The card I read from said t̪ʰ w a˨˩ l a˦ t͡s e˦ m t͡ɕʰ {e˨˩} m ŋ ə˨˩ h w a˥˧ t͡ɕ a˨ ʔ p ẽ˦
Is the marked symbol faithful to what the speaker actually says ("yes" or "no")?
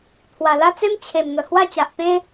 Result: yes